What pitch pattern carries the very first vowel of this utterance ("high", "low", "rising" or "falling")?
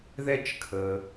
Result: high